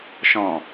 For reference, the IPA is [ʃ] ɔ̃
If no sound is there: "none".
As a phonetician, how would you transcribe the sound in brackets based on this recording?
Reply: ʃ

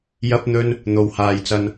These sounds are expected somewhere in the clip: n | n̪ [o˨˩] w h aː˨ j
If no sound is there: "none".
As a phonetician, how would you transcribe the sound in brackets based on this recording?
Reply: o˨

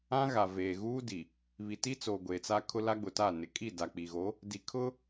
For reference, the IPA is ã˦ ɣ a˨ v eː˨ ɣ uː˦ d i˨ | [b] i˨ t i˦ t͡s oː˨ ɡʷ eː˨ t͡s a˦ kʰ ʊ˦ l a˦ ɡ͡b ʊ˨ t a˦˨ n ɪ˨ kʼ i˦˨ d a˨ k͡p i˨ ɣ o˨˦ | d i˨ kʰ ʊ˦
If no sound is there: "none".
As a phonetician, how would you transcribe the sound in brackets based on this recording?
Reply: β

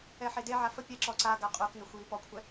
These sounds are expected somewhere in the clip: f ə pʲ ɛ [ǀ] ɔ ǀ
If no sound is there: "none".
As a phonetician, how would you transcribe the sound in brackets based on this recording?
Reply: ǁ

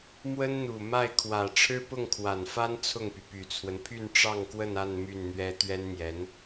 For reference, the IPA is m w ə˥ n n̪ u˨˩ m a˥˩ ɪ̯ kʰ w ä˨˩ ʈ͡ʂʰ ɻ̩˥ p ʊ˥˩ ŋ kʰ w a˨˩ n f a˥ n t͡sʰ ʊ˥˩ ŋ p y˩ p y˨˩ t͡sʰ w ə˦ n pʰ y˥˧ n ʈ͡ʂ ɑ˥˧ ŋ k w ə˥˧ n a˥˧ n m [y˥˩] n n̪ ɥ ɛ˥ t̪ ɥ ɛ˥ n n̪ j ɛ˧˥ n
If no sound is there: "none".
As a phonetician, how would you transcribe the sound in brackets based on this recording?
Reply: y˥˩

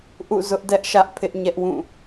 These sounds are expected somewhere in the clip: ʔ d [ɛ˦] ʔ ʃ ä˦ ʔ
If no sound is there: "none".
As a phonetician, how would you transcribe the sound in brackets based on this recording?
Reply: ɛ˦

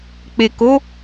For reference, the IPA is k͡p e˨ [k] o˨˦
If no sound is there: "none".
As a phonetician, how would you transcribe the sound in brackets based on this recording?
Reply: k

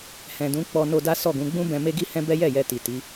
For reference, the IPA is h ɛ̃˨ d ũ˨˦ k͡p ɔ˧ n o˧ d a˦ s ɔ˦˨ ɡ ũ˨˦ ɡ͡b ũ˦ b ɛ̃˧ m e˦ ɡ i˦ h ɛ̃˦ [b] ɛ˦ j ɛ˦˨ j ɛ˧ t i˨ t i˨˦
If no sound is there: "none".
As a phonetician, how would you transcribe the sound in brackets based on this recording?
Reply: b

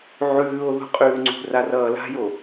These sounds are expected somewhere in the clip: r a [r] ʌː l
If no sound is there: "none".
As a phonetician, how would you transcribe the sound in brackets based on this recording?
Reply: r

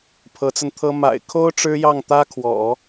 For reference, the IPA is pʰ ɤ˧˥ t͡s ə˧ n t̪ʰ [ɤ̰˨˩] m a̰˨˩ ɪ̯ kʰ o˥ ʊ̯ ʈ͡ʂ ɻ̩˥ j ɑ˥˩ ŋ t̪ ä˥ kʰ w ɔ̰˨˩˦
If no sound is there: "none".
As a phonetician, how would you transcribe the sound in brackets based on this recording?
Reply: ɤ˥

